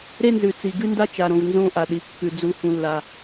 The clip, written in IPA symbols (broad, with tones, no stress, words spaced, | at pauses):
ɾe˦nzʉ˨t͡si˨ ɡɨ˦nda˦t͡ʃa˨ɾõ˨v nzõ˦ʔa˨ɗi˨ kːʉ˨ d͡zu˦ hũ˦lːa˦